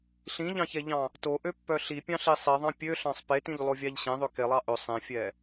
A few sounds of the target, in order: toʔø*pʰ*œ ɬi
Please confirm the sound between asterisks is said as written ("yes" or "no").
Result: no